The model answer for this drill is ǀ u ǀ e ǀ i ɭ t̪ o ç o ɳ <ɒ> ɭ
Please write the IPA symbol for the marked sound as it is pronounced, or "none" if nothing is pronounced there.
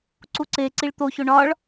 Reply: ɒ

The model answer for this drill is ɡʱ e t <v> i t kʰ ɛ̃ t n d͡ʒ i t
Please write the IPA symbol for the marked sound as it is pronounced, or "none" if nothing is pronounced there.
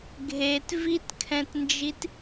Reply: v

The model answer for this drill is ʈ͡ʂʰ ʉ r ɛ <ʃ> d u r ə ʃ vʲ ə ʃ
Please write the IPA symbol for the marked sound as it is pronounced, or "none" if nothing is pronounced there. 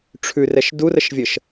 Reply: ʃ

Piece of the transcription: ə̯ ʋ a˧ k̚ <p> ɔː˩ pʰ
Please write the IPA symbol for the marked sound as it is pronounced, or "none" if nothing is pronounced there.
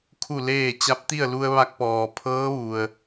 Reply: p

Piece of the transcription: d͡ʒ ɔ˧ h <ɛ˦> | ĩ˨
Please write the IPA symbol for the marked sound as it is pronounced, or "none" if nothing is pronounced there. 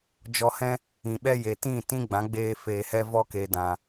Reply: ɛ̃˦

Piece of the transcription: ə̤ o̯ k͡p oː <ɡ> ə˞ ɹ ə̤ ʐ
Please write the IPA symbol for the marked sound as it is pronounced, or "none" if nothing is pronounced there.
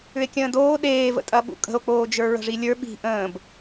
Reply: d͡ʒ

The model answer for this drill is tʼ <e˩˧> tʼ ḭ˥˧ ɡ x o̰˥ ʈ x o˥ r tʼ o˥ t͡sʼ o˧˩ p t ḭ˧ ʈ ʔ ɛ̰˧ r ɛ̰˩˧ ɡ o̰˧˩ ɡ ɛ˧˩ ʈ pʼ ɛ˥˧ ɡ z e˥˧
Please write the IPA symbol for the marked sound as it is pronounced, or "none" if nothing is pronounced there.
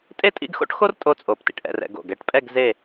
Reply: e˥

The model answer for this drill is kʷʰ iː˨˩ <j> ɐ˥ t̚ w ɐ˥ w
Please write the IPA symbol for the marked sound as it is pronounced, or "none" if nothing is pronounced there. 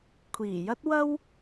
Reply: j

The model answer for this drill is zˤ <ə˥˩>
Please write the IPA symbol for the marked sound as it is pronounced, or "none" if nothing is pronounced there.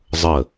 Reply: ə˥˩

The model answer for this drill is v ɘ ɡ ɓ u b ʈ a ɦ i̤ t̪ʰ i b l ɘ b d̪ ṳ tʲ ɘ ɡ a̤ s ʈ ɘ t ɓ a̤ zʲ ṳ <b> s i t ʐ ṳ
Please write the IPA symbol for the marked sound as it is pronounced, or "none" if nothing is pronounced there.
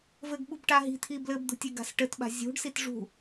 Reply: ɖ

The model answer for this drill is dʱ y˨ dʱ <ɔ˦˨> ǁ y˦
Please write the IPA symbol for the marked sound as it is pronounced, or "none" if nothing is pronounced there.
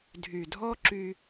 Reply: ɔ˦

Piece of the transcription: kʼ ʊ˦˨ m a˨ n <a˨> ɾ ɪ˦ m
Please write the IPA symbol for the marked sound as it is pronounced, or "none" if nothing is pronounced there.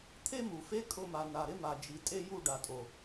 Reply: a˨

